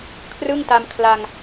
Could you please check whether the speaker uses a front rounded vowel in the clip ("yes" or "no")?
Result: no